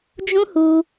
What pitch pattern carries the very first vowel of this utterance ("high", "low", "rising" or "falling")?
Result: high